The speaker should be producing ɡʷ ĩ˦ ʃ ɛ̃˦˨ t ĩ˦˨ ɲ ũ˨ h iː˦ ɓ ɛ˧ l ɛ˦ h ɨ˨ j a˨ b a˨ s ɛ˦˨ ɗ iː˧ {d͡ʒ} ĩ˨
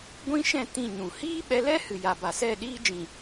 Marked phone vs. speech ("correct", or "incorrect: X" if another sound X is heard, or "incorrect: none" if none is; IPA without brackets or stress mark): correct